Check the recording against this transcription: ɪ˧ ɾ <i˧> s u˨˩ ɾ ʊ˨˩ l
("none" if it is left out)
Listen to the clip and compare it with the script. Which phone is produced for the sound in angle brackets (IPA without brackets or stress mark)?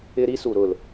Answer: i˧